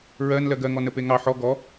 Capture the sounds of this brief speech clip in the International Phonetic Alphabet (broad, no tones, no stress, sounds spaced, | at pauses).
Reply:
ɹ ɜ n l ɜ ɡ ɜ ŋ ɔ n ə p e ŋ ɑ ħ ɔ ɡ ɔ